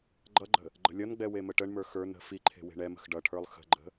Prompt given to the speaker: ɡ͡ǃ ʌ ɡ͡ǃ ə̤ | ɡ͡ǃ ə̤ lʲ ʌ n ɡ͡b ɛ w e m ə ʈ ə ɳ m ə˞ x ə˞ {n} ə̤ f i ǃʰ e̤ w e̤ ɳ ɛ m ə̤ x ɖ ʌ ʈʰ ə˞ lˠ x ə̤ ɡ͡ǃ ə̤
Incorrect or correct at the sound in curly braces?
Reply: correct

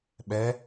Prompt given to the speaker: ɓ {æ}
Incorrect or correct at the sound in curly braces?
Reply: incorrect: ɛ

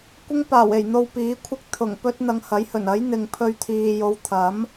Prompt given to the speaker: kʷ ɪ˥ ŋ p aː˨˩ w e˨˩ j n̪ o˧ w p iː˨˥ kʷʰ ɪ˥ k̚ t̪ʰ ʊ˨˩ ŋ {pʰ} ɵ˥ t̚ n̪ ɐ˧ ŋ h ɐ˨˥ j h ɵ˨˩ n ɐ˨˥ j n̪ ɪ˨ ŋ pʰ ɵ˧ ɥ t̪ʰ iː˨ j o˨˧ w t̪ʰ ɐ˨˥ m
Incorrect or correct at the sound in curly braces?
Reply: incorrect: p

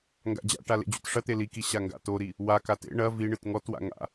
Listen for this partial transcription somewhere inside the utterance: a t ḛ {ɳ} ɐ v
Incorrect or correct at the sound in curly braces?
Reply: correct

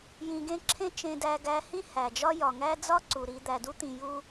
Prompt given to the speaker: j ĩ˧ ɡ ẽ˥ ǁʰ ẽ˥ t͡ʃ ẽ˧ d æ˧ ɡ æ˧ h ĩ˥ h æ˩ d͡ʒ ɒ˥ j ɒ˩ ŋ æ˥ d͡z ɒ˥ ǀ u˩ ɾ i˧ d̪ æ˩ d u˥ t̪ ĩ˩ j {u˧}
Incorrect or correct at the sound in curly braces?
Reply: correct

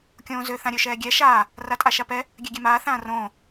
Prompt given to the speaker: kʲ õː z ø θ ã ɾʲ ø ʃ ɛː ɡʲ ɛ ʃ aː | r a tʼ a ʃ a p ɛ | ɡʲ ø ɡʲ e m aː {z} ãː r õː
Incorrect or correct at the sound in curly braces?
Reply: incorrect: θ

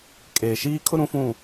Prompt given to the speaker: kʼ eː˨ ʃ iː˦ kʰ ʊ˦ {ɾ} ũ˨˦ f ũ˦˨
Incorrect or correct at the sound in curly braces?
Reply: correct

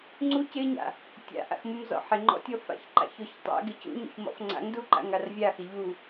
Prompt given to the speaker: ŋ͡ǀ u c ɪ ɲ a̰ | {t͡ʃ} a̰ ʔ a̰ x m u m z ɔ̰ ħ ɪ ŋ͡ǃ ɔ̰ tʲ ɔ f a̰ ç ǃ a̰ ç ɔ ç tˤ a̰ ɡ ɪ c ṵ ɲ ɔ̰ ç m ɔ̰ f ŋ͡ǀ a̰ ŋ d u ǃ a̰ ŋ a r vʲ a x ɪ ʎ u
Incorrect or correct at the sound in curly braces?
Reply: incorrect: tʲ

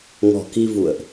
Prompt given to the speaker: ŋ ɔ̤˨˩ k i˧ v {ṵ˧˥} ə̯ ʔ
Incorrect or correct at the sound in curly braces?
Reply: incorrect: ṵ˧˨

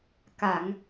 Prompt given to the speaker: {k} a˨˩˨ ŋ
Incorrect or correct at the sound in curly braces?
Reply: correct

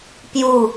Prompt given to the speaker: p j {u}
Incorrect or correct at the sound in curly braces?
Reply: correct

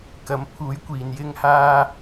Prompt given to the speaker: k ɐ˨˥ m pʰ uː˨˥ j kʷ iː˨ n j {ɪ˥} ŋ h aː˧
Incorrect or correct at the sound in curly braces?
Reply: correct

